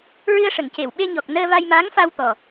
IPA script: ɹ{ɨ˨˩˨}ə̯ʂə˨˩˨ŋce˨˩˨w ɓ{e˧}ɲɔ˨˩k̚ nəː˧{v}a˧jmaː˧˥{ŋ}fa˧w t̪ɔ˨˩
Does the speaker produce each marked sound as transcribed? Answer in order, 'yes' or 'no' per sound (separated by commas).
no, yes, yes, yes